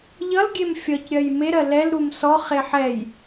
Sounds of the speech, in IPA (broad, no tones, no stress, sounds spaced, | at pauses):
ʎ ʌ l ɡʲ e m fʲ ʌ c ɾʲ ɜ j m e ɾ ɜ l ɛ l ɾ u m s ɔ χ e ħ ɛ j